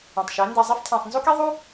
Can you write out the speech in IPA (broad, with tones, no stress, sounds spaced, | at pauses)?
ẽ˨ tˤ ʃ æ˨˦ n d æ˧ zˤ e˦ f tʰ æ̃˨ sˤ n z o˦ k i˦ ðˤ u˦